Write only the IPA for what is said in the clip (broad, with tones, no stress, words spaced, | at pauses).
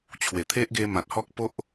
t͡ɕʰwe˨˩t̪ʰe˦ʔɡe˧ mã˨t̚hɔ˦k̚po˦ʔ